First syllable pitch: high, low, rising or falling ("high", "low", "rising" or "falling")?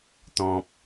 low